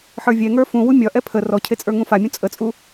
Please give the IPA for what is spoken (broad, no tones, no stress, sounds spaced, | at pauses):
ħ ə˞ vʲ ɛ ŋ ə˞ f ũ w u mʲ ɒ ʔ ɛ pʰ ə r ɔ cʰ e t͡sʼ ə˞ ŋ ũ f a mʲ ũ t͡sʼ ə t͡sʼ u